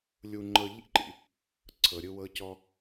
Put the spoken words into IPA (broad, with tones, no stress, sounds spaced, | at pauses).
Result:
lʲ u˧ ŋ͡ǃ ɤ˧ ʎ ḭ˥ ǃ ḭ˩ | ǀʰ ɤ˩ ɾʲ ɯ˧ w ɤ˧ c ɔ˧